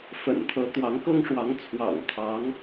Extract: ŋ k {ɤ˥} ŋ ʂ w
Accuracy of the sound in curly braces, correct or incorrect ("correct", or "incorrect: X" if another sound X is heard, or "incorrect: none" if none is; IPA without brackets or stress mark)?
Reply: correct